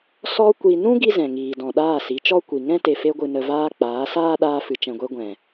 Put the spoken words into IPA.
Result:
s ɔ˧ kʷ i˨ n ũ˦ ɡ i˦ z ɛ̃˨ ŋ iː˨ d ɔ̃˨ ɗ aː˦˨ s i˨˦ t͡ʃ ɔ˦ kʷ i˨ ŋ ɛ̃˦ t e˨ f e˧ ɡʷ ɨ˨ n ə˨ v aː˧ k͡p aː˨˦ s aː˦ ɗ aː˧ f ɨ˨ t͡ʃ ɛ̃˨ ɡʷ e˧ ɡʷ ɛ̃˨

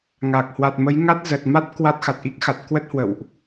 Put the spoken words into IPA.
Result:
ŋ a˨˩ k̚ h w a˨˩ t̚ m ə˨˦ j ŋ a˦˥ t̚ z ə˨˩ t̚ m a˦˥ t̚ k w a˦˥ t̚ x a˨˩ t̚ ʔ i˦˥ k̚ x a˨˩ t̚ k w ə˦˥ t̚ h w ə̰˧˨ w ʔ

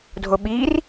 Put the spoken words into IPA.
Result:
dʱ o ɓ iː r

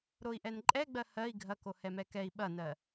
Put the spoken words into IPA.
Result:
ɾ o i̯ ʔ ɛ n ǃʼ ɛ ɡ͡b ɜ h ɜ i̯ ɡʱ ɐ k o h ɛ m ɛ k ɛ i̯ ɓ ɐ n ɜ

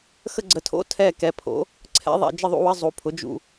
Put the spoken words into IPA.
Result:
x ə˦˨ ɡ͡ǀ ə˩˥ tʰ o̰˧˥˧ tʰ ɛ˦˨ k ɛ˩˥ pʰ o̰˩˥ | ǀʰ ɛ̰˧˥˧ ðˤ ɛ̰˦˨ d͡ʒ ə˦˨ ðˤ ṵ˦˨ w ə˧˥˧ zˤ u˩˥ pʰ ʊ˩˥ d͡ʒ ṵ˦˨

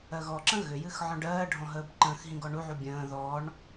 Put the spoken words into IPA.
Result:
ɜ ɣ ɔ ǁ ə̃ ɣ ʏ j ɨ x ʕ ɔ̃ ɖ ɜː ɖʱ ɔ̃ ɦ əː b ǃ ə̃ː x ɦ ĩ ɡ ɔ ɳ u ʕ u bʲ ə̃ː ð ɔ ɳ

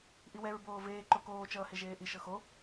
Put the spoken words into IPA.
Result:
ʔ i w ɛ ɹ b oː v eː ǃ o k oː t͡ʃ ʌː h e ʒ eː ʔ i ʃ ɤ x o

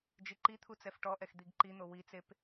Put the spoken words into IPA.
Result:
d͡ʒ i ǃ i t̪ʰ u t͡s ɛ f ʈ ɔ ʔ ɛ x d̪ i ɡ ǃ i n̪ o w i t͡s e p

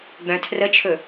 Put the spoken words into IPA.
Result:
ɡ͡b œ̃ tʰ r ə t͡ʃʰ ɵ

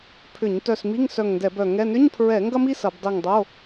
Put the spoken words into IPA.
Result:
pʰ ʏ˧˩˧ ɲ t œ˧˩ s m i˧˥˧ ŋ s œ˧˩ ŋ n d ɛ˧˩˧ b œ˧˩ ŋ ɛ˧˥˧ n ʏ˧˥˧ ɲ pʰ ɹ ɛ˧˩˧ ŋ ɡ ɐ˥ m i˥ s ɐ˧˩˧ b dˤ i˧˩ ŋ dˤ o˧˥˧

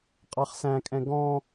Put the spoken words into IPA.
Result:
qʼ ɑ χ s æ̃ kʼ ɛ̃ ɡ ɔ̃

